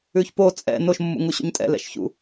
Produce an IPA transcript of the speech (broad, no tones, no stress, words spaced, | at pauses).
ʉçpo t͡sʼɛ̰ noʃmːṵ ŋuɕṵɲtʼɛ̰ lɛ̰ʃçṵ